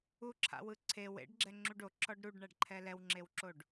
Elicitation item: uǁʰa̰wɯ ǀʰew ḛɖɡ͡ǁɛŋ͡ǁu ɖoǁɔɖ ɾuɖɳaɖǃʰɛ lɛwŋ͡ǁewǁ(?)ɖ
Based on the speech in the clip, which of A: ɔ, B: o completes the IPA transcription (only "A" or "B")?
B